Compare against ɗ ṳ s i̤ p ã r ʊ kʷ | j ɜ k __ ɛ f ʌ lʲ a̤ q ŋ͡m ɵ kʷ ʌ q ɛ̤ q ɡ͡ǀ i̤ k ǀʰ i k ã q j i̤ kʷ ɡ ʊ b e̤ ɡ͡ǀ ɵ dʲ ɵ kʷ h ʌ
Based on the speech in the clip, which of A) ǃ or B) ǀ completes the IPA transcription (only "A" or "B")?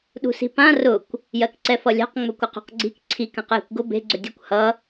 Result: B